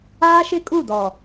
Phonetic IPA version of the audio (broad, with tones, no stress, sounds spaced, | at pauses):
aː˦ ʃ ɪ˦ kʼ u˦˨ d ɔ˨